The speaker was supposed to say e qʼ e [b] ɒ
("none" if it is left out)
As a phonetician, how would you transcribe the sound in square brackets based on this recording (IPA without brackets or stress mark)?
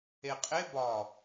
b